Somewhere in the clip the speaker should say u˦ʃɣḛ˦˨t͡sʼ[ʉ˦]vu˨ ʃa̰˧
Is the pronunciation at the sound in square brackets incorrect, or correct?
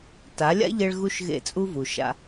incorrect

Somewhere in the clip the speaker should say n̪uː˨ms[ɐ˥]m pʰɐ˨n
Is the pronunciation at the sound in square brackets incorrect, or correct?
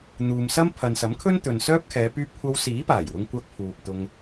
correct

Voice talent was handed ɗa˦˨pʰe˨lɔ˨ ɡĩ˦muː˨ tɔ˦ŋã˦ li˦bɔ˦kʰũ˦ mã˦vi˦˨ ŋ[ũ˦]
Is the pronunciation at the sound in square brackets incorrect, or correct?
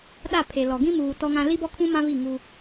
incorrect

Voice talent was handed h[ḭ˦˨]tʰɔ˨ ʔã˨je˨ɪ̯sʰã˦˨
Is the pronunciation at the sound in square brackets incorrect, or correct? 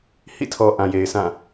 correct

